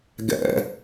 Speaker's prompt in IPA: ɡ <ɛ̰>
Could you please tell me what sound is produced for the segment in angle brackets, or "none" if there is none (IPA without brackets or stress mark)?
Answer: ɛ̰